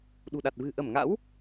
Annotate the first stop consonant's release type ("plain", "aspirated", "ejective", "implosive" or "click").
implosive